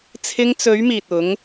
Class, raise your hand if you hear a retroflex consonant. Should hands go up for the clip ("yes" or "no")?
no